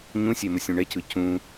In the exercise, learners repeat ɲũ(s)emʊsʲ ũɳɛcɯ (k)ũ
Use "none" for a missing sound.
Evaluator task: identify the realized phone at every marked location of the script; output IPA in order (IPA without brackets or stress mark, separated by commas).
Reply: sʲ, c